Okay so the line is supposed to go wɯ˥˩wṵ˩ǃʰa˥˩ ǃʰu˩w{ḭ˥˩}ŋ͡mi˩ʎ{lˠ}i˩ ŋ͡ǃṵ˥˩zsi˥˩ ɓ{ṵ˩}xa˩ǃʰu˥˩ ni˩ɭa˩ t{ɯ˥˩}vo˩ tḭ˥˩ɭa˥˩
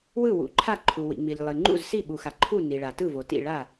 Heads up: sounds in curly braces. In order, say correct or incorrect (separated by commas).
incorrect, correct, incorrect, correct